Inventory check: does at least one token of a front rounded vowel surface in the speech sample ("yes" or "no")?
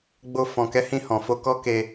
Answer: no